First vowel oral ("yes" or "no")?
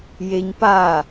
yes